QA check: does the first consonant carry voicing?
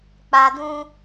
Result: no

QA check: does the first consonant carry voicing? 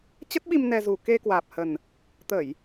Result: no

